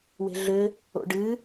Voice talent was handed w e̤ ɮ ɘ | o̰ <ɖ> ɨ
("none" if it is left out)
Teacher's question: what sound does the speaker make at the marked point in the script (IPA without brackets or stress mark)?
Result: ɖ